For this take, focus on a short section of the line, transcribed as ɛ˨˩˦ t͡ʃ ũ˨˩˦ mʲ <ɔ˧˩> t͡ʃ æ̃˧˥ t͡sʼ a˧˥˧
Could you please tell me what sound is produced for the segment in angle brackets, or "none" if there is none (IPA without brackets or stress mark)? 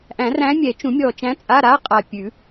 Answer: ɔ˧˩